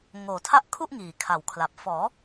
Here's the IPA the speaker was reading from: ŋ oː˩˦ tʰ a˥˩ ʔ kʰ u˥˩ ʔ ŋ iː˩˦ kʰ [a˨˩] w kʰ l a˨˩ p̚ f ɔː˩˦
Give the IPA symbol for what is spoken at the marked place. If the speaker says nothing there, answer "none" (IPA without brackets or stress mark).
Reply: a˨˩